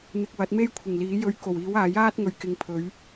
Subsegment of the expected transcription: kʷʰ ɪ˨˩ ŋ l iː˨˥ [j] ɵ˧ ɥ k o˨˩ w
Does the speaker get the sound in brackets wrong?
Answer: no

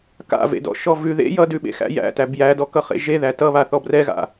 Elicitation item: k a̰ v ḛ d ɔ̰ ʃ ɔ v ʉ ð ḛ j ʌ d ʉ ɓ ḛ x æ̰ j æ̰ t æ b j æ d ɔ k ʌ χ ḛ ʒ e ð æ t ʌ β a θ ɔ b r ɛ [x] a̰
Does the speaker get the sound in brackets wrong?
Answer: yes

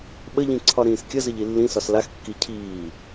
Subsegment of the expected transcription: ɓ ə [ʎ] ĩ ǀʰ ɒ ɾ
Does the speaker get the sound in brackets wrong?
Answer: no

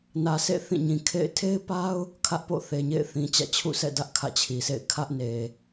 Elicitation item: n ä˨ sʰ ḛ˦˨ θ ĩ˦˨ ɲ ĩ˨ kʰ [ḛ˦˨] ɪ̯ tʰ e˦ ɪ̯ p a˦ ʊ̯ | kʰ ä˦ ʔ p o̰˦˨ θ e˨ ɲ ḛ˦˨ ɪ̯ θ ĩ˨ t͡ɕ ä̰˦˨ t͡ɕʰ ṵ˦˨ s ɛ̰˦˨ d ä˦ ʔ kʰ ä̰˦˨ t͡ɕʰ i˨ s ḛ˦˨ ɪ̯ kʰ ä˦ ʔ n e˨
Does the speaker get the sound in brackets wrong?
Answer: no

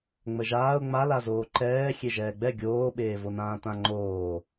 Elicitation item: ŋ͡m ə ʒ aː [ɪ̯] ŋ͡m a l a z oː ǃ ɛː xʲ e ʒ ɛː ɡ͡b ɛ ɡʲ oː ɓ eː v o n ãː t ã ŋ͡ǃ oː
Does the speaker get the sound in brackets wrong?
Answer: yes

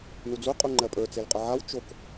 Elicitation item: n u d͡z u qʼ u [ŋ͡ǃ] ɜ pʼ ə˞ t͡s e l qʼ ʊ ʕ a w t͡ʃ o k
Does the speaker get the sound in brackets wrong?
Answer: no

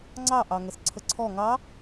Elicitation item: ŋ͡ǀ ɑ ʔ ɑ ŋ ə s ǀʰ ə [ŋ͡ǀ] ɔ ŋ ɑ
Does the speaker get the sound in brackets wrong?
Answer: yes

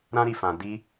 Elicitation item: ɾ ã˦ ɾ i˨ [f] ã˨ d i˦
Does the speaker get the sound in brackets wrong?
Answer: no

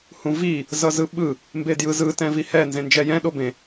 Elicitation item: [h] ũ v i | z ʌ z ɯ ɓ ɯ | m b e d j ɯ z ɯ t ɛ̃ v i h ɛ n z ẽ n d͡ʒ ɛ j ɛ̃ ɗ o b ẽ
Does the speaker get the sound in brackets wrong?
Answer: no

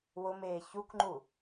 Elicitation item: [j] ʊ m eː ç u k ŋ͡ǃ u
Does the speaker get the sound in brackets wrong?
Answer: yes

